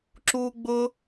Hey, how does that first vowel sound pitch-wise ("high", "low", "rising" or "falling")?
high